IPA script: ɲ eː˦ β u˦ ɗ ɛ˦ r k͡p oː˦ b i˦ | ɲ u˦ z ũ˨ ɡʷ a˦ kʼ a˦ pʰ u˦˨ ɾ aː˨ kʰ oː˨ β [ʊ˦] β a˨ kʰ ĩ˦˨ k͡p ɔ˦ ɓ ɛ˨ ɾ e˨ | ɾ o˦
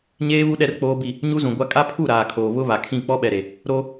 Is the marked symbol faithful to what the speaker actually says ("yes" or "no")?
yes